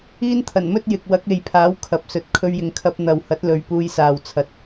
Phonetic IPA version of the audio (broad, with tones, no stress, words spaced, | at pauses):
iː˥nt̪ʰɐ˨˩nmɵ˥t̚ jɪ˨k̚wɐ˨˥k̚e˨˧jpʰaː˨˥w kʰɐ˨p̚sɵ˨˥t̚ kʰɵ˧ɥjɪ˨ŋkʰɐ˧p̚ n̪ɐ˨whɐ˨˥t̚lɵ˨ɥ puː˧jsaː˨wt͡sʰɐ˨t̚